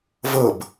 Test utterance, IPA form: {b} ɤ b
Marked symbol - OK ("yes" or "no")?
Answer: no